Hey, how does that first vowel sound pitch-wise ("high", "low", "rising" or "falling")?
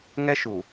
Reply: high